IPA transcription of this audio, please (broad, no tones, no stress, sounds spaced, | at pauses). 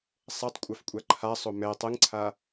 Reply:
sˤ ɛ tˤ kʷʼ a f kʷʼ a ǃʰ a sˤ o m ɛ tˤ ɯ ŋ ǀʰ a